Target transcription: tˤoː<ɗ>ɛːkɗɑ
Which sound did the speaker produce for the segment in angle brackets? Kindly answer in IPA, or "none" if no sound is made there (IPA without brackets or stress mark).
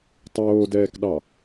d